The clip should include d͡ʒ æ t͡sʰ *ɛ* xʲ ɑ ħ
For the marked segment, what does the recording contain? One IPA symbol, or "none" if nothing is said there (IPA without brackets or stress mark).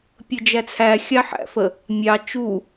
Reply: æ